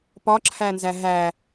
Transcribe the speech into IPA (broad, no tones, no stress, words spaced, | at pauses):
pɒǁʰænzæ ɦæ